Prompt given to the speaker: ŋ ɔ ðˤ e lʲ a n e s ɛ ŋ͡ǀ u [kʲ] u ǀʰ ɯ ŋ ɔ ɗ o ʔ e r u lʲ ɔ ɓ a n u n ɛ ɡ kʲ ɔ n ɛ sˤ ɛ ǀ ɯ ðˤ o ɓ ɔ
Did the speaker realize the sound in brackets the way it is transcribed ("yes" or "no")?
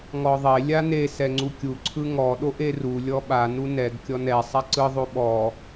yes